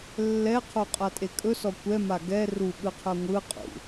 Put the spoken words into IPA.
lːɛqʰo qʼatʼekʼɵsɔ kʷɛma ɡɛ ruɠɯqʰœ ŋʷɯ qʼṵ

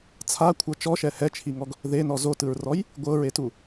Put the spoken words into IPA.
t͡sʰakʷʰɤ t͡ʃɔʃɛ hɛt͡ʃʰiŋɔɡ | ðenɔ zotɯɹrɔj | ɡʷɤɹetu

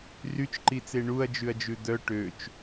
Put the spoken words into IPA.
ryt͡ʃǃit͡se ɳuɐ̯d͡ʒʉɐ̯d͡ʒʉ d̪œ ʈøt͡ʃ

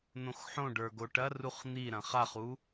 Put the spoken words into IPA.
n̪õxħõɖə˞ ɡoʈɐruχ n̪iɾɐ̃ χaχu

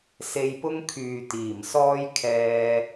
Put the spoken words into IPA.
se˧jpʊ˥ŋkʰyː˨ t̪iː˨˩msɔː˥jkʰɛː˧

